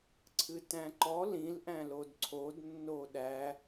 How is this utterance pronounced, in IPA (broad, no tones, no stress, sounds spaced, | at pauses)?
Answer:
ǀʰ ɨ t æ̃ ǃ ɔ l ĩ l ʔ æ̃ l o d ǀʰ o d nː o ɗ æ